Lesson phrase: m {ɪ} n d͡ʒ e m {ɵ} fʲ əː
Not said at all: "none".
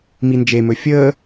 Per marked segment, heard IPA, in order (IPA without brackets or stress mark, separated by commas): i, ɵ